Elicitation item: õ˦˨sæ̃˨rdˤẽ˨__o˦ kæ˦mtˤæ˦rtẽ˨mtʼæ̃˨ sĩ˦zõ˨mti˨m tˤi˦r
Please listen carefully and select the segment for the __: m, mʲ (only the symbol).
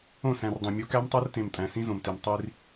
mʲ